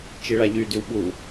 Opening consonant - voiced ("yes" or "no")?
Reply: no